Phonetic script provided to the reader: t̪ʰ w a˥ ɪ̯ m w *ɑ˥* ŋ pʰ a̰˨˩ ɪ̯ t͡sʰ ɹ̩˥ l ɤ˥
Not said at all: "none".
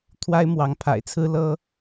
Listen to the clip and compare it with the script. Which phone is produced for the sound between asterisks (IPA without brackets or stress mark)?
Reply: ɑ˧˥